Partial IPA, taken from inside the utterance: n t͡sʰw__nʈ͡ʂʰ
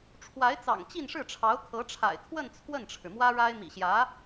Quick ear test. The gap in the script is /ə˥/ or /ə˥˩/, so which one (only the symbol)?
ə˥˩